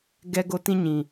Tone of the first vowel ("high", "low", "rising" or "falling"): high